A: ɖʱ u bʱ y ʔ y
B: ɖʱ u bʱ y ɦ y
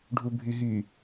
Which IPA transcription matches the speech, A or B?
B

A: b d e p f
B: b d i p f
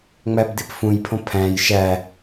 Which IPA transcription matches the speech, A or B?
B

